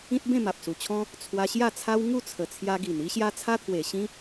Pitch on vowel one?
high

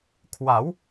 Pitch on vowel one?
rising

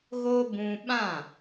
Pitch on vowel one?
high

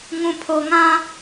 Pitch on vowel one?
low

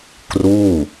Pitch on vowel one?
falling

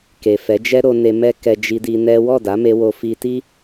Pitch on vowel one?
low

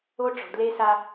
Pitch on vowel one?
high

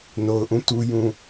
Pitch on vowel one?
low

